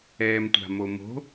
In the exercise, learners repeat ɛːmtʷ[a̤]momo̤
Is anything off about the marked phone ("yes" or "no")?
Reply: no